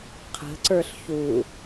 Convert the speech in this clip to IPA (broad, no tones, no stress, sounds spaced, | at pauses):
qʰ ə̤ ǀ ə˞ ɬ ç u